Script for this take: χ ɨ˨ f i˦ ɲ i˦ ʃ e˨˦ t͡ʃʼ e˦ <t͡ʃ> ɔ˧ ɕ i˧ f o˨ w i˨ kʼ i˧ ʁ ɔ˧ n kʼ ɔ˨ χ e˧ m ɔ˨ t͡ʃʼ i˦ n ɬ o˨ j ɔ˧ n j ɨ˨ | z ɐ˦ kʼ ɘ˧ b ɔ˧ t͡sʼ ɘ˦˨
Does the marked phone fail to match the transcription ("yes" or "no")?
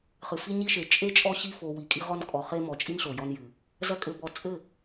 yes